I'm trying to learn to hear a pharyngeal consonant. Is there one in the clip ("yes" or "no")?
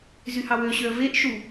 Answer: no